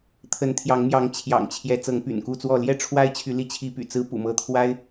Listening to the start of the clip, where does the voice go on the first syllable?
rising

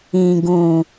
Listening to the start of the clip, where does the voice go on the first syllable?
low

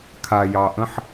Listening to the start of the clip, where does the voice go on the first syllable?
low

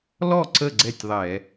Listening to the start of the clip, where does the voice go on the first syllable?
falling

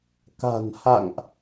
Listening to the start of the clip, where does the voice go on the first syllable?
low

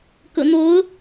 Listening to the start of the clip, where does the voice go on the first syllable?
low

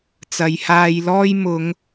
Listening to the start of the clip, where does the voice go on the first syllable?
low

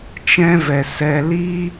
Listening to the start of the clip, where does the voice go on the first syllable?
high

